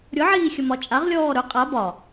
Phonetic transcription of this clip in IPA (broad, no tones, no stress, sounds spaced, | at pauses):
ɾʲ ʊ ʕ iː xʲ ə m ɒ t͡ʃʼ a ʁ lʲ ɔː ɾ ɵ qʼ a b ɒ